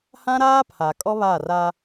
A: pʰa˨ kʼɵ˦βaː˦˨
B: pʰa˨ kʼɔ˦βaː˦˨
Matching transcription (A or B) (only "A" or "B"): B